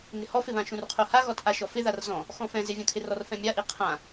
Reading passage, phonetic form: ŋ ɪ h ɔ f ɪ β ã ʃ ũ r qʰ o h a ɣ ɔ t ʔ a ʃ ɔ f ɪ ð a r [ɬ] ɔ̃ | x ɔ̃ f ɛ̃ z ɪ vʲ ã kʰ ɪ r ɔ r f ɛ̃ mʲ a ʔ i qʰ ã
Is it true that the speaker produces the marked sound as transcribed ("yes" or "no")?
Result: no